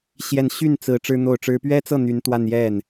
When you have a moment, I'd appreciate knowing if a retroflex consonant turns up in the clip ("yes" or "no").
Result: yes